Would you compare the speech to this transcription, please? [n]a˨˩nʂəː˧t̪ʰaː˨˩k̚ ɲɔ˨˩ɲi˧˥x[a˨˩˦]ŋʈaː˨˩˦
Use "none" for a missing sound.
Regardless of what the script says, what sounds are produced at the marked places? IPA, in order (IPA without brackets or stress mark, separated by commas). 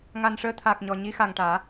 ŋ, a˨˩